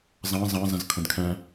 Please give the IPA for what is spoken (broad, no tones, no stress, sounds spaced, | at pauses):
z ɑ̃ z ɑ̃ z ə̃ z kʰ ə̃ d kʰ ɛ̃